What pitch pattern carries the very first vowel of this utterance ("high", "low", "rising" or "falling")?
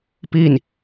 falling